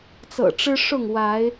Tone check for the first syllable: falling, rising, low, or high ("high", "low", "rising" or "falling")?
low